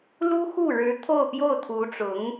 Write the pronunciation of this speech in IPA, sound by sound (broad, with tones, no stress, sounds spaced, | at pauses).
l u˥ x u˥˩ ɻ ɻ̩˧˥ t̪ʰ o˥˧ ʊ̯ p j o˥˩ ʊ̯ t̪ʰ u˧˥ ʈ͡ʂ ʊ˧˥ ŋ